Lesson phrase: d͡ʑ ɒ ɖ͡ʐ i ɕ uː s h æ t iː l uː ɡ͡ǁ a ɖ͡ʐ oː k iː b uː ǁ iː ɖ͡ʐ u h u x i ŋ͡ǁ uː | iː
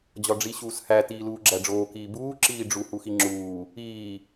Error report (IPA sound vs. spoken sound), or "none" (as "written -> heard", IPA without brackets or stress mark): a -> æ